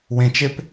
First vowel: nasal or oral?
nasal